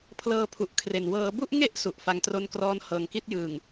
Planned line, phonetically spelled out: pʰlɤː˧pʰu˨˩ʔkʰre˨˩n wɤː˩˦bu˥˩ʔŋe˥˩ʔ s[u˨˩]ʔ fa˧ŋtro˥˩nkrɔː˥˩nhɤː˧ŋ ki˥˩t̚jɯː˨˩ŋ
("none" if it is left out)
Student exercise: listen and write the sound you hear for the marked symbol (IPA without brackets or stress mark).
u˨˩